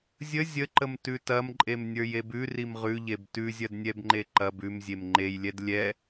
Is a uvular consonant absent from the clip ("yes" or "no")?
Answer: no